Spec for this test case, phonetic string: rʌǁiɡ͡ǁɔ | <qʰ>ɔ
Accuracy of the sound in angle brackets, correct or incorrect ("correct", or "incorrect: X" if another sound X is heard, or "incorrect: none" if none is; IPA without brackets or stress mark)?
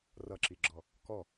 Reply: incorrect: k